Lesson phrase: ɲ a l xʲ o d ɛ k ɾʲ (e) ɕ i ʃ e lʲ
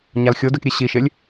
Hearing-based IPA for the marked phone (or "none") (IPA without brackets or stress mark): e